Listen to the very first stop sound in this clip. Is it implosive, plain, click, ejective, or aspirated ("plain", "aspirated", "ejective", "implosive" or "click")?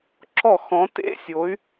click